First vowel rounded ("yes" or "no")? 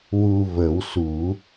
yes